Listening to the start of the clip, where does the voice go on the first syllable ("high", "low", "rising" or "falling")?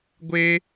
high